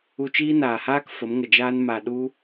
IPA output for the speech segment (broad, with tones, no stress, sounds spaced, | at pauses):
u˧ t͡ʃ iː˦ n aː˨ h aː˦ k f ə˨˦ m ŋ ə˨ d͡ʒ aː˦ n m a˨ ɗ u˦